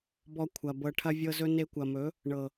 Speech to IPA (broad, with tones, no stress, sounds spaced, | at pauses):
b ɔ˧ kʷʰ ɐ˨ b ɤ˧ ʈʰ ɐ˦ vʲ ɤ˦ z ɵ˦ n e˧ kʷ ɐ˨ m ɵ˨˦ | ɳ ɤ˨